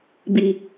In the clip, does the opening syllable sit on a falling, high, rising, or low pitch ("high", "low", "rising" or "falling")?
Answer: low